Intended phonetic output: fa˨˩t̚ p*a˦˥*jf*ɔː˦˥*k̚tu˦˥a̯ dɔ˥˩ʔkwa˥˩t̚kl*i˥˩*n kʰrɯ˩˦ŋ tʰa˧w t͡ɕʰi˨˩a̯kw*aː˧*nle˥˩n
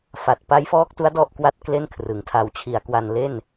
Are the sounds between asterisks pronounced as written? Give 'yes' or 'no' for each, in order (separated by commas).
yes, yes, no, no